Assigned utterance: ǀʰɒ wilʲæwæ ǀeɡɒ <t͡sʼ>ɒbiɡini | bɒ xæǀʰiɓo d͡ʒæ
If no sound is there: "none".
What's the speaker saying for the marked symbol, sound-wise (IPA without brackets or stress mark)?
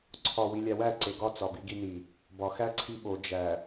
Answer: t͡s